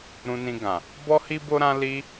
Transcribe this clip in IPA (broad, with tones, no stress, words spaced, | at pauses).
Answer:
ɾũ˧nĩ˧ɡã˨ | bɔ˦hi˦bo˦ɾã˦ li˧